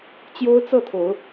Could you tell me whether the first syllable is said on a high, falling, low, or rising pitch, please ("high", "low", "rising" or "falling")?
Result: high